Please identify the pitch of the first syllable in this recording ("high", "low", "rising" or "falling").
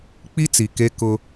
high